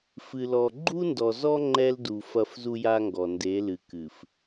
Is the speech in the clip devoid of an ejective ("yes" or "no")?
yes